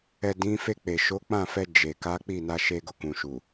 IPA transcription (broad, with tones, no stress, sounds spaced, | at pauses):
ɛ˨ d ĩ˨˦ f e˦˨ k͡p e˨ ʃ o˨˦ k͡p ã˦˨ f ɛ˧ d͡ʒ e˨ k a˨˦ k͡p i˦˨ n a˧ ʃ e˧ ɡ o˨ k ũ˨ ʃ u˨